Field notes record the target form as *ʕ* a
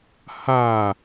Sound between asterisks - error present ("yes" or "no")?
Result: yes